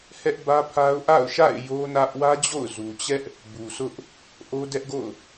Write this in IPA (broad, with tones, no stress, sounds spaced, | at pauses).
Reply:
h ɛ˦ ʔ b ä˦ pʰ a˦ ʊ̯ ʔ a̰˦˨ ʊ̯ ʃ a̰˦˨ ɪ̯ j o˦ n ä˦ ʔ w ä˦ d͡ʑ o̰˦˨ ʊ̯ z u˨ t͡ɕ ɛ˦ ʔ | b u˨ sʰ ʊ˦ ʔ | ʔ o˦ d ɛ˦ ʔ ɡ o̰˦˨ ʊ̯